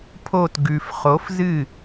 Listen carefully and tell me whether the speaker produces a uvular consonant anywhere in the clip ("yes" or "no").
yes